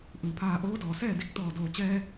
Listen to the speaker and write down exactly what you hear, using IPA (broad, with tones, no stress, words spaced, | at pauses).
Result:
ʔɯː˧˩pʰaː˧ ʔoː˧˥dɔː˩sɛː˥˨di˧k̚ t̪ɔː˧˩doː˧˩t͡ɕɛː˧